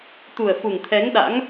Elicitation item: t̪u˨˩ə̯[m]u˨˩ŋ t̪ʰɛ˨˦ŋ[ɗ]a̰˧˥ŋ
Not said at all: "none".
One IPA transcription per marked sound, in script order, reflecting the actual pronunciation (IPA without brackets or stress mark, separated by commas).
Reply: f, ɗ